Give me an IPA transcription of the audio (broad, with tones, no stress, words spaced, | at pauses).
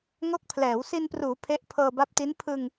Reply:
ŋo˦˥k̚pʰlɛː˩˦w si˧npruː˩˦ pʰe˦˥ʔ pʰɤː˧ba˦˥p̚ti˦˥n pʰɯ˧ŋ